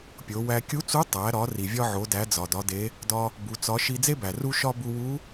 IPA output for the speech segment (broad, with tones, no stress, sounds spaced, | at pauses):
pʲ o˩˧ w æ˧ kʲ u˧˥ t͡s u˧˥ tˤ æ˩˧ ɾ ɒ˩˧ r i˩ vʲ ɒ˥ ʕ o˩˧ d æ˩˧ d͡z ɒ˩ d ɒ˩˧ d e˩˧ | d ɒ˧ | b u˩˧ t͡s ɒ˧˥ ʃ i˧ d͡z e˥ b æ˩ r u˥ ʃ ɒ˥ b u˧ w u˧˥